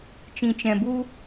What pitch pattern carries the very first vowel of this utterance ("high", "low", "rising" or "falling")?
low